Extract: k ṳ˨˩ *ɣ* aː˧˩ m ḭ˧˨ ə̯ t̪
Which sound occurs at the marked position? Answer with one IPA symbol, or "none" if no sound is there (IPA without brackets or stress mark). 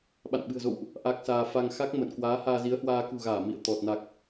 ɣ